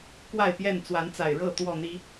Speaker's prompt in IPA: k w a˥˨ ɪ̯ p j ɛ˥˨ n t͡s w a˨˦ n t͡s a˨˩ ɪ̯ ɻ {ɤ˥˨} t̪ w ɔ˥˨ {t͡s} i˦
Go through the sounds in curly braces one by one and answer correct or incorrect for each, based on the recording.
correct, incorrect: n̪

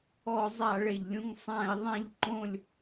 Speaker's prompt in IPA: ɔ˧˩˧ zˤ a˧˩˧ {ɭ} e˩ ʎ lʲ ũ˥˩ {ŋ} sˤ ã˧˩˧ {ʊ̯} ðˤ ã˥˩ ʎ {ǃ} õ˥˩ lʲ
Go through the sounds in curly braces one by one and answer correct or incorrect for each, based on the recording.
correct, correct, incorrect: ɪ̯, correct

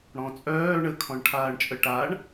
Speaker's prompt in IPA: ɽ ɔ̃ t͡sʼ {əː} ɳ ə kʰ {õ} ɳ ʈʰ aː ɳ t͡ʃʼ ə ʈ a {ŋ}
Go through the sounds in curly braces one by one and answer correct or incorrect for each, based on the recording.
incorrect: œː, incorrect: ɔ̃, incorrect: ɳ

